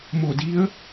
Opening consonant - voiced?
yes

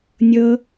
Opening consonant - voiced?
yes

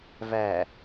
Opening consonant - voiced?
yes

